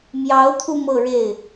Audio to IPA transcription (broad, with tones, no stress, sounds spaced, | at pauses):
m j ɑ˧˥ ʊ̯ t̪ʰ u˧ m ɤ˥˧ ɻ e˥˩ ɪ̯